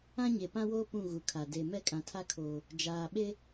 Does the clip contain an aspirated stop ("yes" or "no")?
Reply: yes